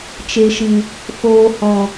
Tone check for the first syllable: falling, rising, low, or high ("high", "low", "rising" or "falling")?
low